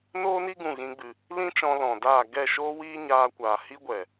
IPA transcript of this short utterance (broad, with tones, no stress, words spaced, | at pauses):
noː˦ni˦ ɡũ˦˨ɣĩ˦ɡ͡bɨ˧ | lĩ˦t͡ʃɔ̃˧ lɔ̃˨daː˦˨ ɡɛ˦˨ʃoː˦wiː˦ ɲaː˧kʷaː˨ hi˦ɡʷɛ˨